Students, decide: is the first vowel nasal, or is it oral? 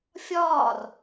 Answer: oral